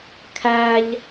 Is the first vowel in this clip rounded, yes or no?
no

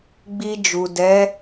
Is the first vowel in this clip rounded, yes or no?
no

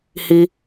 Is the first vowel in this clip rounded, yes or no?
no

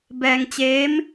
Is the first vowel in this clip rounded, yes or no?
no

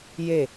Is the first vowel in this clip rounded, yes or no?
no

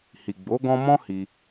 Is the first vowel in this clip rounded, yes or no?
no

